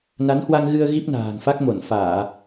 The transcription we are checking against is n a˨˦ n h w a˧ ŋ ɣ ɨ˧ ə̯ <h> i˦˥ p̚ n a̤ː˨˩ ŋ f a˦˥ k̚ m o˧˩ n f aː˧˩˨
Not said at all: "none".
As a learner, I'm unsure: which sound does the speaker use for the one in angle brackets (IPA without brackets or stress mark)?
ɣ